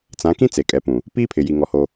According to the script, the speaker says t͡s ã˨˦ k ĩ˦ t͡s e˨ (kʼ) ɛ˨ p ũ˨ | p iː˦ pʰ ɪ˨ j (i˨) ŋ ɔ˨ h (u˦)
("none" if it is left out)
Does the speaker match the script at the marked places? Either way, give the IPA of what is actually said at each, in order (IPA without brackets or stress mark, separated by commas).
kʼ, i˨, o˦